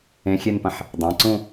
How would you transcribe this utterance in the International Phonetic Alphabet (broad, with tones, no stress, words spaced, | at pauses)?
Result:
ẽ˨˥xʲe˥˧npɐ̃˧˩ħ | dˤã˩˧˩ǀũ˥˧